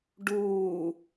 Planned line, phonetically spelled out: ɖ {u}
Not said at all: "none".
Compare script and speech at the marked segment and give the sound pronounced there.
uː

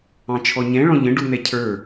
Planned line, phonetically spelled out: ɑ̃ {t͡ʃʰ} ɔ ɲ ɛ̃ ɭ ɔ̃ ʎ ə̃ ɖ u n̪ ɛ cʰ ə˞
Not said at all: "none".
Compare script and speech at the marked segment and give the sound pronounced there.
t͡ʃʰ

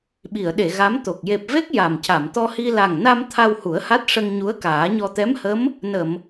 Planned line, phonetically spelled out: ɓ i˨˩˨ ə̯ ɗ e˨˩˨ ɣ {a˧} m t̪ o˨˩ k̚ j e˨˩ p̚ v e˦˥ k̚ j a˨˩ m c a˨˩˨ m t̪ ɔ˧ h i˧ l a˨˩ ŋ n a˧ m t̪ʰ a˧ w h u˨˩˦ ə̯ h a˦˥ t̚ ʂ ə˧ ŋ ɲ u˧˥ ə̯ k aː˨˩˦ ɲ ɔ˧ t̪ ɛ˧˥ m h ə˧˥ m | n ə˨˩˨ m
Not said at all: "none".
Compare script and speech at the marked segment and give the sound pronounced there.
a˧˥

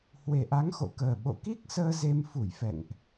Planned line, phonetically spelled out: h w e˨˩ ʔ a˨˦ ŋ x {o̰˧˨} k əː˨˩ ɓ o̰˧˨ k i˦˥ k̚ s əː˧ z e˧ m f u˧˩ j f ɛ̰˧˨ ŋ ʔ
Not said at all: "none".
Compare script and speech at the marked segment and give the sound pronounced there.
o̰˧˨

